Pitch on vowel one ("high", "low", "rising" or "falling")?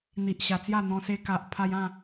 low